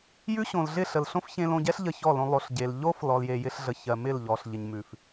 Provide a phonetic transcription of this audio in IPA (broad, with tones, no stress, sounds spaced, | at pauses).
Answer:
j ʉ˦ ɕ õ˨ l ɮ ɪ˦˨ ɬ ə˨ l ɬ õ˦ f ç ẽ˧ l õ˧ ɟ ɛ˦ ɬ ʎ ə˧ ç ɔ˦˨ l õ˧ lˠ o˨ ɬ ɟ e˨ l ʎ o˦ f l ɔ˧ l j e˧ j ɪ˦ ɬ ɮ ə˧ ç ɜ˨ m ɪ˦˨ l ʎ ɔ˧ ɬ ʎ ɪ˧ ɲ m ʉ˨ f